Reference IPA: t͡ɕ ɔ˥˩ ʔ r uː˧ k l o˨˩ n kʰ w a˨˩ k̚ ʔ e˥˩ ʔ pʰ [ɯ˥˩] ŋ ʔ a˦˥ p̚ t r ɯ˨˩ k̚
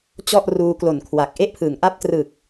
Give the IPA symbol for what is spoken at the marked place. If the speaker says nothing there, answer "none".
ɯ˩˦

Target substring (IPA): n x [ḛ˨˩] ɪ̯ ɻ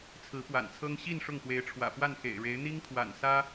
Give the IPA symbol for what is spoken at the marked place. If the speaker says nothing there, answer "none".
ḛ˨˩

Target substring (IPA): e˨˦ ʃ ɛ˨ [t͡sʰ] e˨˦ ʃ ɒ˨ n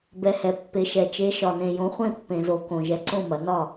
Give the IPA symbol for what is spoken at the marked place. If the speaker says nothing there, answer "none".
t͡ʃ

